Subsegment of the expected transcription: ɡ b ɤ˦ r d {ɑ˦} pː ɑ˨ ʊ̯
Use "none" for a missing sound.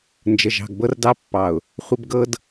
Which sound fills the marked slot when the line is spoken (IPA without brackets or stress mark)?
ɑ˦